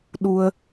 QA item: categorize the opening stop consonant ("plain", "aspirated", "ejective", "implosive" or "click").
implosive